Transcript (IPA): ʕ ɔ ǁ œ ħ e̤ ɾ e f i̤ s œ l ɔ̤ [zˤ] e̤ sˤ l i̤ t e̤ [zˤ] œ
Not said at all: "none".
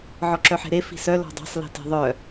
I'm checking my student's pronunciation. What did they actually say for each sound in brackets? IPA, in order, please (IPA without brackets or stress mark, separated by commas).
dˤ, ðˤ